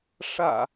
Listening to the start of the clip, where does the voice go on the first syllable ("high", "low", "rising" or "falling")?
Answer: low